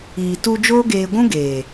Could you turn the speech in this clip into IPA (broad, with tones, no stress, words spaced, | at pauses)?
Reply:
iː˨tu˧ d͡ʒoː˦ɡeː˧ɡʷũ˦ɡeː˨